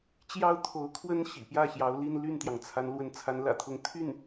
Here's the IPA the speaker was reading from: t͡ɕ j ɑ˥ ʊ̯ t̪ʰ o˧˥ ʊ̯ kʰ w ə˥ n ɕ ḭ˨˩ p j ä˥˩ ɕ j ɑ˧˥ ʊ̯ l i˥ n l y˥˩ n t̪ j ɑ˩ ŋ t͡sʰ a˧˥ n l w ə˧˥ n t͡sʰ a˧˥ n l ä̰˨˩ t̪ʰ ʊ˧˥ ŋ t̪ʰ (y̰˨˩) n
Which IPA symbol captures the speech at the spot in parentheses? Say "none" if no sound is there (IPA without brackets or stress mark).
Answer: y˥˩